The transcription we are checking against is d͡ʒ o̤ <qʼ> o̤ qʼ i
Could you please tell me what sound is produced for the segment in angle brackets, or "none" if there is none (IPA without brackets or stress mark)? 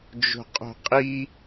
qʼ